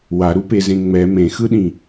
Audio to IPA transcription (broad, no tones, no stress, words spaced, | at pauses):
waɾupezẽ ŋ͡mɛ mẽxɯɗĩ